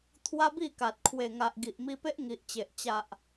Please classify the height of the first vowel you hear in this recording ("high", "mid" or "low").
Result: low